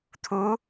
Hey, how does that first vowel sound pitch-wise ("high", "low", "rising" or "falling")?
rising